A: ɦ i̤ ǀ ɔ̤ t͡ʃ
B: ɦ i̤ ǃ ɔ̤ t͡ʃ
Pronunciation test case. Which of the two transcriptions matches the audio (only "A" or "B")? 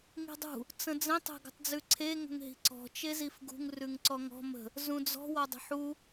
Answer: A